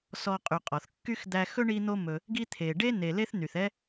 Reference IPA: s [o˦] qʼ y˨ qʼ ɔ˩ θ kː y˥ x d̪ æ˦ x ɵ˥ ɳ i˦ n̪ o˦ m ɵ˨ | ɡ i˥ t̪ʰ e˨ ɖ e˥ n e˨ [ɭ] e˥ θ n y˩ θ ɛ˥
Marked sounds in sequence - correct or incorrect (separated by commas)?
incorrect, incorrect